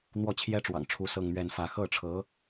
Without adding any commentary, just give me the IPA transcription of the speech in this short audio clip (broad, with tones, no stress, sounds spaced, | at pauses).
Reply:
n̪ w ɔ˥˩ t͡ɕʰ j ɛ˥ ʈ͡ʂ w ɑ̰˨˩ ŋ ʈ͡ʂʰ u˧˥ s ɤ˥˧ ŋ m ɥ ɛ˥˧ n f ä˥˧ x ɤ˥˩ ʈ͡ʂʰ ɤ˧˥